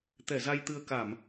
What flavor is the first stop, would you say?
plain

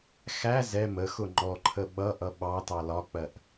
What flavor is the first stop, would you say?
click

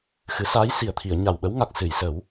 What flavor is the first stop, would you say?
aspirated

